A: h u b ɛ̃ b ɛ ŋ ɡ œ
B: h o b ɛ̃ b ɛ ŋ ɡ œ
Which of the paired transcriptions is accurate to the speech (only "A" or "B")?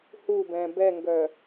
A